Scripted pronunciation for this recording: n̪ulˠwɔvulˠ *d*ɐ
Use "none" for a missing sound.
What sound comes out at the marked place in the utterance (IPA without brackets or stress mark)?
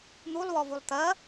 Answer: t̪